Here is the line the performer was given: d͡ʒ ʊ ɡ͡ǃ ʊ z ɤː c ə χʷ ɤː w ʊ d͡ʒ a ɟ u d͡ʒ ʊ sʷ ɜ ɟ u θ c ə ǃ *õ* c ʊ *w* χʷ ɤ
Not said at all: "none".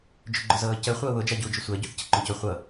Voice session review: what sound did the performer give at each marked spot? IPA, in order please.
õ, none

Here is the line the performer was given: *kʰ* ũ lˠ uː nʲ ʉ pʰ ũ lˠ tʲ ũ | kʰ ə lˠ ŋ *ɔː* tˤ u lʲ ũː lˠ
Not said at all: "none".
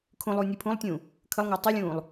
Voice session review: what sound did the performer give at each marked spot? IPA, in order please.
kʰ, ʊː

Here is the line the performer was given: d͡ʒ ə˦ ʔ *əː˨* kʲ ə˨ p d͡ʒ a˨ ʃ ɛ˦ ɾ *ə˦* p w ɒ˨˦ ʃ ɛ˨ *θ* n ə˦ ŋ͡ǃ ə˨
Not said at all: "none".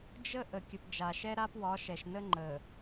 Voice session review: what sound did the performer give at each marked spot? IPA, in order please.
ə˨, a˦, ʃ

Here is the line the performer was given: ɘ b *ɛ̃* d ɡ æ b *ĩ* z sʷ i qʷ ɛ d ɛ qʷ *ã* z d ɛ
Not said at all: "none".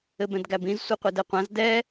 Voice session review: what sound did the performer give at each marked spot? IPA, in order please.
ɛ̃, ĩ, ã

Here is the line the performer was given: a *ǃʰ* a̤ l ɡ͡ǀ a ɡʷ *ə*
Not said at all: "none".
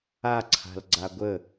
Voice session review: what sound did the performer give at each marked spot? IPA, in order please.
ǀʰ, ə

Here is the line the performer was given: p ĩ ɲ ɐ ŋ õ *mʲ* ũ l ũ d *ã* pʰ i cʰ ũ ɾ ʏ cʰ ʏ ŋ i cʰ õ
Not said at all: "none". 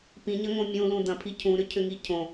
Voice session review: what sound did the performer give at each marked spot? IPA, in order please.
mʲ, ɐ̃

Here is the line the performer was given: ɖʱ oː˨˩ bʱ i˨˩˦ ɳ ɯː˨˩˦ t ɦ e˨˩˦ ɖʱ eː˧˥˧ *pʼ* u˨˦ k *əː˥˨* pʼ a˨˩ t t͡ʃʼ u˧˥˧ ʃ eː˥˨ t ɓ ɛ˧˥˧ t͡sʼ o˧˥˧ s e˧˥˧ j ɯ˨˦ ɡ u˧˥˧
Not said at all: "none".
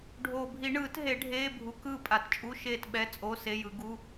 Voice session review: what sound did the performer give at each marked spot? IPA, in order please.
bʱ, ɯː˥˨

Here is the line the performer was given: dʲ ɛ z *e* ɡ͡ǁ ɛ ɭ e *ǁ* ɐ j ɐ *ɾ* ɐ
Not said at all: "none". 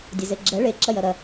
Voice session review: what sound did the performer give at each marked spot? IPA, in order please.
e, ǁ, ɾ

